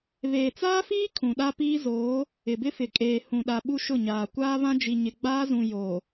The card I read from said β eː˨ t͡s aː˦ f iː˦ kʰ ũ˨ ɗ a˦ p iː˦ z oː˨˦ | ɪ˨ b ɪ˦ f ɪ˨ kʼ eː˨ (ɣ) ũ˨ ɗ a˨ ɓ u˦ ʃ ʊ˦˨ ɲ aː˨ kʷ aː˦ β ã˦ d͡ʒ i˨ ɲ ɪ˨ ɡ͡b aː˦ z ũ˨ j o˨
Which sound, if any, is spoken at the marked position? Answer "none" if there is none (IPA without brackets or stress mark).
h